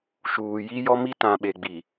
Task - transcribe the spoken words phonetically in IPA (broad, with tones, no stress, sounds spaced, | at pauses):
ʃ uː˨ j i˦ j ɔ˦ m i˦ t ã˨ ɓ e˨ ɡ͡b i˨